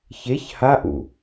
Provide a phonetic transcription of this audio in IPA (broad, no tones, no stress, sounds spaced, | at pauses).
ç e ç h a ʔ ṵ